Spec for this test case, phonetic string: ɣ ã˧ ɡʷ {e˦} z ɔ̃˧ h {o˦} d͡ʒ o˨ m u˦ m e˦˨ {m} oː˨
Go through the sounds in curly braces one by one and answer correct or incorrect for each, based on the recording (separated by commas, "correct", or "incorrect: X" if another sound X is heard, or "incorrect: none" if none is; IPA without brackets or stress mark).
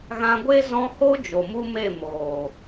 correct, correct, correct